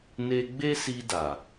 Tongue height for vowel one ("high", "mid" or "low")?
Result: mid